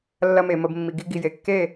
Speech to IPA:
lː ɐ˧ m e˨ m ə˨ b mː i˨ ɡ i˧ ɡ i˨ j e˨ kː e˦˨

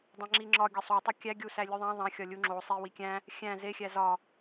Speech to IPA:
dˤ æ̃ ŋ͡ǁ i ŋ͡ǁ ɒ ɡʲ ɒ sˤ o tˤ e kʲ æ ɡʲ u s æ lʲ u ðˤ æ̃ ðˤ æ̃ xʲ ɒ lʲ u ŋ͡ǁ o sˤ i w i kʲ æ̃ | xʲ æ̃ z e xʲ æ z ɒ

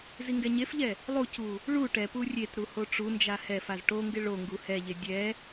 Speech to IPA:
z i ŋ ɡ ɛ ɲ e f ʎ ɛ | lˠ u c u | ɭ u ʈ ɛ p u rʲ e t ɾ u h o ʈ͡ʂ u n d͡ʒ a h ɛ f a z ʈ o ŋ ɡ ɪ ɭ o ŋ ɡ u h ɛ ʎ e dʲ ɛ

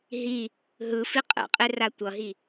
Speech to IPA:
ɦ i | ɦ ɯ f i qʼ ɛ̰ qʼ e r a tʷ ʌ ɦ i

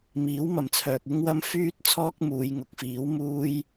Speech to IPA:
m iː˨˥ w m ɐ˨ m t͡sʰ œː˨ k̚ ɪ˥ ŋ w ɐ˥ m f yː˥ t̚ t͡sʰ ɔː˥ k̚ m uː˨˧ j ŋ ʊ˨˥ k̚ f iː˨˥ w m uː˥ j

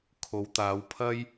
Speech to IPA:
kʰ o˨˧ w t̪ aː˨˧ w pʰ ɐ˥ j

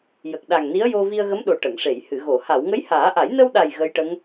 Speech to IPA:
j ə˨˩ k̚ ɗ a˨˩ ŋ n i˧˥ ə̯ j o˧ v i˧ ə̯ ɣ ə˧˥ m ɗ o˨˩ ʈ ə˨˩˨ ŋ ʂ e˨˩˨ j h ɨ˨˩˨ ɣ o˨˩˨ h a˨˩˨ w ŋ ə˧˥ j h aː˨˩˦ ʔ a˨˩˦ j n ə˧ w ɗ a˨˩ j ɣ ə˧˥ j ʈ ə˧˥ ŋ

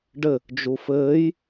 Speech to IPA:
ɖ ɘ | d͡ʒ u f ɘː j

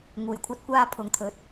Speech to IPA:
ŋ uː˨˩ j kʷʰ ɐ˥ t̚ kʷ aː˥ pʰ ʊ˨ ŋ t̪ʰ ɵ˨˥ t̚

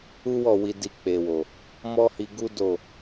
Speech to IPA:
u˦ w ɔ˦˨ w i˧ d i˧ k͡p e˨ w o˨ | m ɔ˦ h i˧ ɡ u˦ d o˦˨

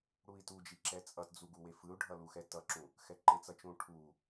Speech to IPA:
ɽ u i̯ t u d͡ʒ i ǁ ɛ t͡sʼ ʌ t d͡z u ɡ u w e f ɯ u̯ ɖʱ ʌ l u x ɛ t ʌ ǁ ũ | x ɛ ǃ e t͡s ʌ t͡ʃ ũ ʈʰ u

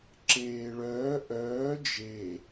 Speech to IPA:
ǁ eː ɭ œː ʔ œː d͡ʒ e

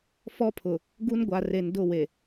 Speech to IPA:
f ɔ˦ pʰ ʊ˨ | ɡ u˦ n ɡʷ a˨ r e˨ n d ʊ˦˨ w e˨

